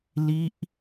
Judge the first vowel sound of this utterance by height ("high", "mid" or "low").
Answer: high